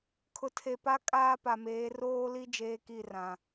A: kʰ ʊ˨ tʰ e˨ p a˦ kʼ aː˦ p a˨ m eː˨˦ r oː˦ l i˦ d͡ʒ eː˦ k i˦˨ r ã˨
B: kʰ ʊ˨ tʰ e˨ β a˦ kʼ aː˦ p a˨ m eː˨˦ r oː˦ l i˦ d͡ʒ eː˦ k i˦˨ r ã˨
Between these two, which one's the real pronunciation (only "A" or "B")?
A